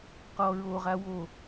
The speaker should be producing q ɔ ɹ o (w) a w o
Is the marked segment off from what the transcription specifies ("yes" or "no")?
yes